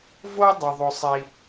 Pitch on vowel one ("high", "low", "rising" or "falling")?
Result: high